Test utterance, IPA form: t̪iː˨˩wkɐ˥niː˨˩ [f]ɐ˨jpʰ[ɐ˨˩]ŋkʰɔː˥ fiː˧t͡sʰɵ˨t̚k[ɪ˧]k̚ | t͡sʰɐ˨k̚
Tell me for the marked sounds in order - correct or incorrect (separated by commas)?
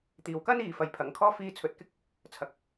correct, correct, incorrect